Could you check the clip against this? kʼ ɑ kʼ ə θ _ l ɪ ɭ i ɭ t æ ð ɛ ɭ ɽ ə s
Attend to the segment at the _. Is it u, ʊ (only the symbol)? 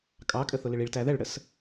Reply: ʊ